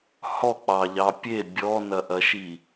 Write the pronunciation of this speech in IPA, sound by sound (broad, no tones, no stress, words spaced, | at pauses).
hɔk͡pɑʎɑ pʲe bʲɔnɐʔɐʃi